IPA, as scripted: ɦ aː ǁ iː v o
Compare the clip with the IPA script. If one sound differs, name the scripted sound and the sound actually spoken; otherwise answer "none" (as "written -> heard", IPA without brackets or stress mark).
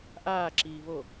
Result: ɦ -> ʔ